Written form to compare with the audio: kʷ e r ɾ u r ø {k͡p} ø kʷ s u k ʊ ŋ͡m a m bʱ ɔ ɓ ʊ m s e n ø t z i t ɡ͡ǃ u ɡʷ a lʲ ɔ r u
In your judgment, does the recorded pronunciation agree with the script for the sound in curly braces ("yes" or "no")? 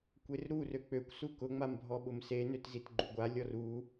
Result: yes